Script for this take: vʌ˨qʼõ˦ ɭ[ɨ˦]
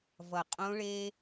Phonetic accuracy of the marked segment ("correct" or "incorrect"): incorrect